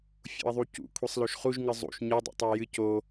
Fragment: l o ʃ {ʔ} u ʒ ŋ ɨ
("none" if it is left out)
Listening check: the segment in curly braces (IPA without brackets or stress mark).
χ